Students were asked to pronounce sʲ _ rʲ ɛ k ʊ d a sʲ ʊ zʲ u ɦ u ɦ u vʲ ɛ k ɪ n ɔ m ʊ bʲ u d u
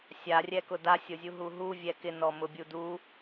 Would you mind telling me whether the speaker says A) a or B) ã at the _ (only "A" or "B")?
A